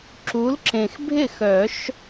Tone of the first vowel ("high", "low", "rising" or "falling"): rising